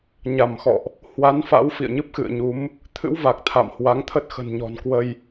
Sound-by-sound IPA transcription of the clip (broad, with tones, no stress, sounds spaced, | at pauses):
ɲ a˧˩ m x ɔ̰˧˨ ʔ | h w a˨˦ n f a̰˧˥ w f ḭ˧˨ ə̯ ɲ ɨ˦˥ p̚ x ɨ̰˧˨ ə̯ ɲ u˨˦ m | t̪ʰ ɨ̰˧˥ w v a˨˩ k̚ t̪ʰ a̰˧˨ m h w a˨˦ ŋ t̪ʰ ə˦˥ t̚ x ə̤˨˩ n ɲ ɔ̤˨˩ n k w ə˧ j